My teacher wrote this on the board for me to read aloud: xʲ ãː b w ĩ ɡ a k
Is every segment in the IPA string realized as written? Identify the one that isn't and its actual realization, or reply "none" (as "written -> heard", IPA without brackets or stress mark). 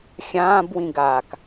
none